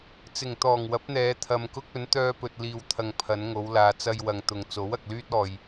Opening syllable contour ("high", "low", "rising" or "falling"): low